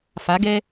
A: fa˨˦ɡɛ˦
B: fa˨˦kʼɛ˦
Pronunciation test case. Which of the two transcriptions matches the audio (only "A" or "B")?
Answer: A